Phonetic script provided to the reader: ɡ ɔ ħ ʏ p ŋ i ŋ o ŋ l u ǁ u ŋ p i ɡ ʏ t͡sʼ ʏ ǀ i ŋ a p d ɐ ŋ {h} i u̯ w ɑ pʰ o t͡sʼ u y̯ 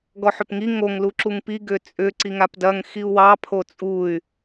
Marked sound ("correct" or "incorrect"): incorrect